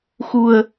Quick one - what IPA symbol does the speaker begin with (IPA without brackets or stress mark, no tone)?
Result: x